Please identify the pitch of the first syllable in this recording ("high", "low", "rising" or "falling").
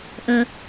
low